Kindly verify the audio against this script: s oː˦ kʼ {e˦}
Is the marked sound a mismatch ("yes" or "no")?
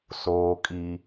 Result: yes